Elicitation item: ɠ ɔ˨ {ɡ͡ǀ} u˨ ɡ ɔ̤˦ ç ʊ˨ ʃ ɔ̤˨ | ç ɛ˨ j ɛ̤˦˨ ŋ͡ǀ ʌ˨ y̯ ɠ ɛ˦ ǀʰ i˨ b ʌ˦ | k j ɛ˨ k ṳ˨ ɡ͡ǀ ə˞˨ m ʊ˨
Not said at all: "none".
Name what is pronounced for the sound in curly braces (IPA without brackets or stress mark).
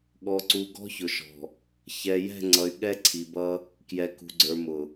ǀ